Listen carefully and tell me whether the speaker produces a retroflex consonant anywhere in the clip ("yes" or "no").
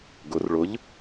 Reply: yes